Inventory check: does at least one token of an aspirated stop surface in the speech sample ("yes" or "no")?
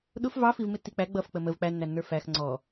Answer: no